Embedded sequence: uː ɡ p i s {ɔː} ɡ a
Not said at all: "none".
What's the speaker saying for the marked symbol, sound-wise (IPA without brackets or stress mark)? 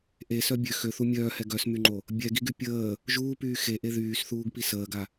əː